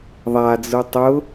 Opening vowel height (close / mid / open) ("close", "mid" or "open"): open